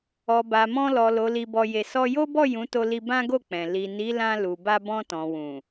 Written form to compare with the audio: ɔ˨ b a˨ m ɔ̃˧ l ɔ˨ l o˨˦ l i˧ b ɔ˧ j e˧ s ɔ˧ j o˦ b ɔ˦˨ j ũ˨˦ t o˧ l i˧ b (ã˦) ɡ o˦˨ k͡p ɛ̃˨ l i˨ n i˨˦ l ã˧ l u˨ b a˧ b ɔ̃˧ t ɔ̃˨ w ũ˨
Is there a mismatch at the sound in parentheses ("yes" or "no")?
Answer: no